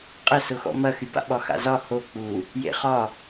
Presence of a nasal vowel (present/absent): absent